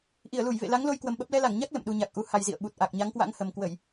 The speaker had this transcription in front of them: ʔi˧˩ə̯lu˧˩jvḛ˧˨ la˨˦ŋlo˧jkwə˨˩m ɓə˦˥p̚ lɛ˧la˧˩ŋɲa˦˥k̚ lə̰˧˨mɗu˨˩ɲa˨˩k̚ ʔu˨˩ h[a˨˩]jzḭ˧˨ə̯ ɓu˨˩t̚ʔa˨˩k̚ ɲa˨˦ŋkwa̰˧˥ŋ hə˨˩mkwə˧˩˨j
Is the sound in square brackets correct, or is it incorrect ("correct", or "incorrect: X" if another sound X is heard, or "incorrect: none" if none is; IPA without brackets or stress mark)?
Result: correct